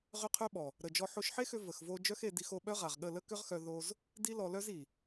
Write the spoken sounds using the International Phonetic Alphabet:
ʁʏ˧ qʰœ˦ɓɔ˨ | ɾə˨d͡ʒɔ˧ ħo˧ʃħe˦xʏ˧ və˨xvo˧ d͡ʒœ˦xe˧ di˧xo˧ ɓœ˦ʁa˨ʁɠə˦˨ lə˦kʏ˦ʁxœ˧ ðo˧z | di˦lɔ˧lœ˦zi˨

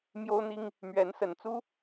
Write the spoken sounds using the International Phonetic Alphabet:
mjo˥ʊ̯n̪i˥ŋ | mɥɛ˧˥nsə˨˩nt͡su˥

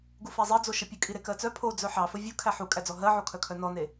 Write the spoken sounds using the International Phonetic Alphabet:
ɡufæzˤɜd͡zo ʃəpʲəkʼi ɾekɜt͡sœ pʰo d͡zœħɑfə vʲu kʰæħukʼæd͡zɔ ɦɜʕokʰœ kʰœnɔne

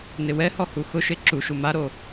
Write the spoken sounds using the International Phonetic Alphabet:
nɪwɛhɔ huxʊʃe ǁuʃu maɾo

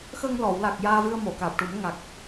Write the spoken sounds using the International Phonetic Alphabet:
xə˧ŋlɔ˨˩˨w la˨˩k̚ jaː˧vɨ˧ə̯mo˨˩˨kaː˨˩p̚ ʈu˨˩˦mŋa˨˩k̚

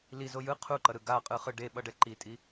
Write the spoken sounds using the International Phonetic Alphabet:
lizo jɯ qʰuǃʌɾɯ ɡaqʼɯχɯ ɖeɓʌɖɛ ǃitʼi

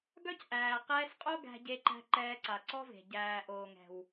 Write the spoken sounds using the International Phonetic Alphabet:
ɡœ˦cʔæː˨qɛː˧sqʼo˦ ɡæ̤˧ɟe˧ǃæ̤˧ ǃɛː˧ǀa˨ǀɔ˦ve̤˨ ɟæː˨ʔoː˨ ŋɛ̤˨w

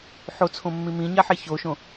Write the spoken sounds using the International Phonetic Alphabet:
ħot͡sʰõmːĩ mĩɲaħe çoʃõ

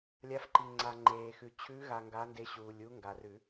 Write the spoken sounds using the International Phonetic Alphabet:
lʲa˧˥fǃi˨ŋ͡ǀa˨ ŋ͡ǃeː˨xʉ˨ t͡ɕʰʉ˧˥ɣa˨ ŋɡa˧˥nde˧˥ɕuː˨lʲ u˧˥ŋɡa˨rʉ˨˩˦

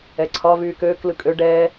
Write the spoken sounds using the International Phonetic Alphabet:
ɛǀʰɒ vyːkøːk lɯkʼø ɖɛː

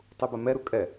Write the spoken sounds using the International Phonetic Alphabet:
tˤubamɛ ɾukʼɛ

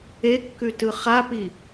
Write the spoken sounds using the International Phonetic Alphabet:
ekːʉtɯ χapi

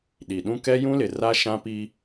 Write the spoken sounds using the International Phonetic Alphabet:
ɗi˨ɗũ˦ kɛ˦jũ˦lɪ˨ra˦ ʃã˦pi˦

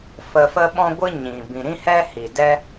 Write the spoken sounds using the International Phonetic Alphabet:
fə˧fə˦ɓɔ̃˦ɡʷɨ˦ ɲĩ˨ bĩ˨ɾĩ˦ hɛ˦hi˨ dɛ˦

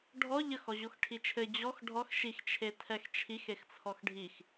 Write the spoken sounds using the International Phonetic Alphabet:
ɖʱɔ ʎəx ɔʑoxʈʰit͡ʃʰɘ d͡ʑɔx ɖʱɔx ʃix t͡ʃʰetʰɛxt͡ʃʰix ext͡sʰɔxɖʱix

